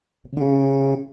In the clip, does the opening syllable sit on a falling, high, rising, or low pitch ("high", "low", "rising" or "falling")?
high